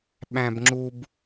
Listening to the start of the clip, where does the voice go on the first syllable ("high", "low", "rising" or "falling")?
low